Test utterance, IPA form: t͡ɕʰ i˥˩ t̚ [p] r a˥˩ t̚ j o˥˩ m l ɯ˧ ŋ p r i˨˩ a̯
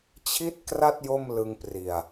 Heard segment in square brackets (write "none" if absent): k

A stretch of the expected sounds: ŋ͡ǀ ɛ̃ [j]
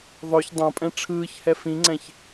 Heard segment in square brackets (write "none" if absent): ç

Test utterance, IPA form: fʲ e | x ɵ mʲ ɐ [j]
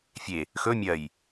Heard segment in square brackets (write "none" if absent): j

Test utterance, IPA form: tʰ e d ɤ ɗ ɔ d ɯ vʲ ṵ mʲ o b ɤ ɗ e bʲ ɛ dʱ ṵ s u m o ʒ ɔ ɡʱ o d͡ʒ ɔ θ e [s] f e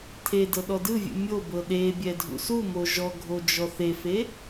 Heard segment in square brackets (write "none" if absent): none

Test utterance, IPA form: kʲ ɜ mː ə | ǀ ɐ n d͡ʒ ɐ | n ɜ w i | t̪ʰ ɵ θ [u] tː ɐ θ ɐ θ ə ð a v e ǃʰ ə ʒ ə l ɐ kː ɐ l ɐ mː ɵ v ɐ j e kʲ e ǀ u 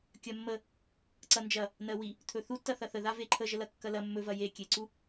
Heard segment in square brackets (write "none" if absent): u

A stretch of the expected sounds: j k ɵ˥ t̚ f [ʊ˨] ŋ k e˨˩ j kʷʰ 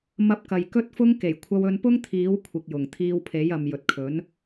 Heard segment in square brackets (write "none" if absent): ʊ˥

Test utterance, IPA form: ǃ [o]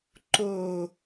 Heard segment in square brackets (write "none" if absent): o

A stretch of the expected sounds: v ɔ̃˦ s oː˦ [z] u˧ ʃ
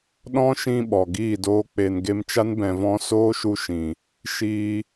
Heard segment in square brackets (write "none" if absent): ʃ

